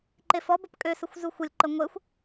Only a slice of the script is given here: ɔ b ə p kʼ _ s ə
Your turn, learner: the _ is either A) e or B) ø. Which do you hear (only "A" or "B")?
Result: B